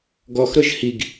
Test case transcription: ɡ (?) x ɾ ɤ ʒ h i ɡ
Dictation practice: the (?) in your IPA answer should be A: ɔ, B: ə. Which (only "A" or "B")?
A